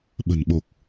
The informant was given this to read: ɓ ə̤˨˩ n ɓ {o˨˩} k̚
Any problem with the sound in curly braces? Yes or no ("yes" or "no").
no